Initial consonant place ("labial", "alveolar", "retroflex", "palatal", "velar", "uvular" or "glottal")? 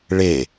retroflex